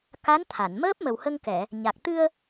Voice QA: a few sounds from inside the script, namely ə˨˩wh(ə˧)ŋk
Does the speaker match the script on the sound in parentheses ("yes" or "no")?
yes